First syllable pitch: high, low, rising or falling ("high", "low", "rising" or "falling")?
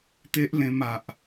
high